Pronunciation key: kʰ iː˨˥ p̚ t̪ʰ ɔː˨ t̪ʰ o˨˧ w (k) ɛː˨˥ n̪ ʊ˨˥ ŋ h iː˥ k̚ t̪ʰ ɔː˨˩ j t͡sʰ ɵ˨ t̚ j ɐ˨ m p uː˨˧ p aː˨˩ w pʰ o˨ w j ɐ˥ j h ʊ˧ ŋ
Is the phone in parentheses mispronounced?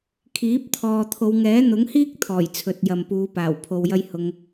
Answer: yes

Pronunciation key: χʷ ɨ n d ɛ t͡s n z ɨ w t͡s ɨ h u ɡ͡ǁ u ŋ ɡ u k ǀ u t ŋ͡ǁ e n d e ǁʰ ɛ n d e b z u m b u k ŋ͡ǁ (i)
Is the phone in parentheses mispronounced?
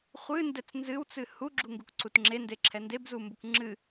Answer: yes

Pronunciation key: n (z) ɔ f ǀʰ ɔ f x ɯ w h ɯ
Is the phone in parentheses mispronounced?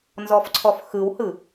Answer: no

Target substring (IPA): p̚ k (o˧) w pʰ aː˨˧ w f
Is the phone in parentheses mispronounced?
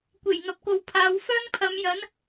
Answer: yes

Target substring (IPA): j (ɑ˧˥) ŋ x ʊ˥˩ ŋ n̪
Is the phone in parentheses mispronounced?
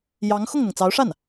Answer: no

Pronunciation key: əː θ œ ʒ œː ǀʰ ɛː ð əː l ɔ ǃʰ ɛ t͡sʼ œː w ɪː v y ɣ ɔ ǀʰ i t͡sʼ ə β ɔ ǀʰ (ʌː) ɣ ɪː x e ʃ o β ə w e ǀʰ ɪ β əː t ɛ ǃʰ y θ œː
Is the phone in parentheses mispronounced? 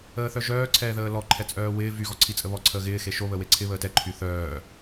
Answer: yes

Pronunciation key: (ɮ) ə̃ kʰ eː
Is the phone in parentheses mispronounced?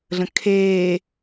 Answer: no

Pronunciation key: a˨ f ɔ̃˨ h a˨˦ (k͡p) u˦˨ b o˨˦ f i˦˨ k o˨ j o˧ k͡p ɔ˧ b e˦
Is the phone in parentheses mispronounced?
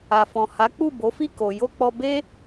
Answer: no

